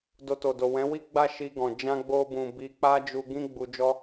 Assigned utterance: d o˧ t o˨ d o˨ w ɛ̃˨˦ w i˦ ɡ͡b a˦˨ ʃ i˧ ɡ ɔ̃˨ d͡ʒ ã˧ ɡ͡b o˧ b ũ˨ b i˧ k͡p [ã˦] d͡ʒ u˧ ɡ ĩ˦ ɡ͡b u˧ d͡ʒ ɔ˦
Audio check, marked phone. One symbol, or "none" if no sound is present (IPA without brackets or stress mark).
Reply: a˦